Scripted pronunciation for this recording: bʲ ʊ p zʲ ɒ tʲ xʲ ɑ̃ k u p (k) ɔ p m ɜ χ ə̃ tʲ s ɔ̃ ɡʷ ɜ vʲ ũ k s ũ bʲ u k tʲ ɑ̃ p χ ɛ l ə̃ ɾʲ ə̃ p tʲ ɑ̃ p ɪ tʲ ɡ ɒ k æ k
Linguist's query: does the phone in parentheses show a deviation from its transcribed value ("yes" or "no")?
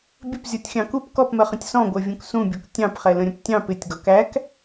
no